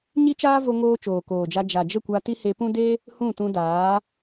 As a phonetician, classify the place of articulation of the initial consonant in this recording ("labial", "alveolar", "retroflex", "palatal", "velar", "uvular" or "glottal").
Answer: palatal